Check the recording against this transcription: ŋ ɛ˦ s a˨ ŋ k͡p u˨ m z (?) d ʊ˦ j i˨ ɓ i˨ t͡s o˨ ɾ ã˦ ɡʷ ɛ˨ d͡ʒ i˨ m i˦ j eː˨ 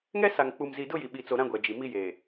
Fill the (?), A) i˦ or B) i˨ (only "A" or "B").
B